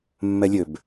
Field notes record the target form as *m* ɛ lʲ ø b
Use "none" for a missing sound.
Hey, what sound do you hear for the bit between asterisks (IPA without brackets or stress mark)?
mː